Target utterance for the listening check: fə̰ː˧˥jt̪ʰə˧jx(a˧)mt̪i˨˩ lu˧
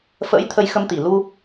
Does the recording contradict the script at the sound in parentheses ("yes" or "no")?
yes